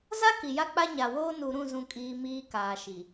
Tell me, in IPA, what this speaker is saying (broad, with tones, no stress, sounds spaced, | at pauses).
z a˦ k i˨ j a˦ k͡p a˦ ɲ a˨ w oː˦ n u˨ ɾ ũ˦˨ z ũ˨ kʼ iː˨ m iː˦ k aː˨ ʃ i˨